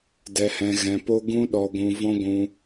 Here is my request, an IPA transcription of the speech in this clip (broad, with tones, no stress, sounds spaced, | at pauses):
d ɛ˧ h ɛ̃˧ ɣ ɛ̃˧ p o˦ ɡ ũ˦ ɗ ɔ˧ ɡʷ ũ˧ v ɔ̃˦ ɡʷ ũ˧